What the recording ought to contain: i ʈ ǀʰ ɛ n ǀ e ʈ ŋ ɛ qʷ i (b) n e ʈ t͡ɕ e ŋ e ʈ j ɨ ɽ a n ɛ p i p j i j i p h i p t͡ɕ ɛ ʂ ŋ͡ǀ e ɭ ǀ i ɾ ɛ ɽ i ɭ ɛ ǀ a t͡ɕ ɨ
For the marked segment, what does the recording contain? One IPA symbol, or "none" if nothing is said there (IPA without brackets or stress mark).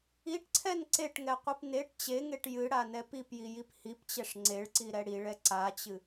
p